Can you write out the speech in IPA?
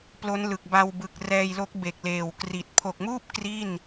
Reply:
p l o˦˥ n l ɯ˨˩ k̚ b a˧ w b ɯ˨˩ k̚ r ɛː˧ j l o˦˥ k̚ b e˨˩ k̚ l eː˨˩ w k r i˨˩ t̚ pʰ o˨˩ k̚ m uː˥˩ p̚ k r i˥˩ n

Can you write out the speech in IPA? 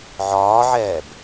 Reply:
ʕ ɒː ʕ ɛː b

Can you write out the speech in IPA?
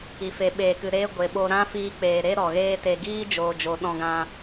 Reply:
i˨ f e˨ ɓ eː˨ k ɨ˨ ɾ eː˧ ɡʷ e˨ ɓ o˧ ɾ ã˦ f iː˧ k͡p eː˨ ɾ e˦ ɾ ɔ˨ ɣ eː˦ t e˧ ɡ iː˦ d͡ʒ oː˨ d͡ʒ o˨ ɗ ɔ̃˧ ɡ ã˧

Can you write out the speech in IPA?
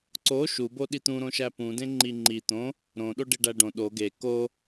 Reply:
ǀ o ʃ u b o ɗ i t̪ ũ ɾ õ ʃ æ p ũ d ẽ ŋ͡ǃ i ŋ͡ǃ i t̪ õ | ɾ õ ɗ o ɖ i ɖ æ ɖ õ ɗ o ɡ e k o

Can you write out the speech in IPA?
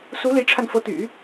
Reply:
s u˧˥ l i˧˥ ʈ͡ʂʰ a˧ n f ɤ˧˥ t̪ y̰˨˩˦

